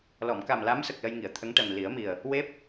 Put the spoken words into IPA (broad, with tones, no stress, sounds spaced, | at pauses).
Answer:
l ɔ˨˩˨ m k a˨˩ m l a˧˥ m s ə˨˩ k̚ l ə˧ j ŋ i˨˩˨ ə̯ t̪ʰ ə˧˥ ŋ ʈ ɛ˨˩ m l i˨˩˦ ə̯ m i˨˩ ə̯ | w e˦˥ p̚